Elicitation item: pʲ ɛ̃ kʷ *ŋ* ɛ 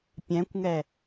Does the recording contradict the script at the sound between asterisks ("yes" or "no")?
no